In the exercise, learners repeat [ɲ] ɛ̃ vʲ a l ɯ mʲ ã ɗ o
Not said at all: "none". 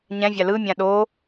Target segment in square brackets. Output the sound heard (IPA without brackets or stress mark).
ɲ